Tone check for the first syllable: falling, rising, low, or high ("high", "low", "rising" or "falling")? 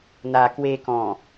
low